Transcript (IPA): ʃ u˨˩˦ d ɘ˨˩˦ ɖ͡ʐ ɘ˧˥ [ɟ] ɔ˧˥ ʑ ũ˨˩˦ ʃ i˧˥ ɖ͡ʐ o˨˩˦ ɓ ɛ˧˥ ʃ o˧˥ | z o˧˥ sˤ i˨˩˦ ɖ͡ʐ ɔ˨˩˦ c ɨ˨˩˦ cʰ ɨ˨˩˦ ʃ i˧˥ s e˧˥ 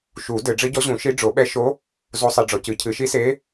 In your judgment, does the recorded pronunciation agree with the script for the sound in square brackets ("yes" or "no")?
yes